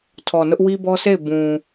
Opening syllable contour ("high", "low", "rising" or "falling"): low